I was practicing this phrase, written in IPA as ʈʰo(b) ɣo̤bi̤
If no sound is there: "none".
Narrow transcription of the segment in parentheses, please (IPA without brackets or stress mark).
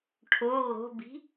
none